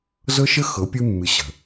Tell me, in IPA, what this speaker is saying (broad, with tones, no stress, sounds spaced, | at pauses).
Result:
z ɤ˦ ʃ ə˦ x ɤ˨˦ pʲ ɨ˦ mː ɨ˨ ɕ ə̤˨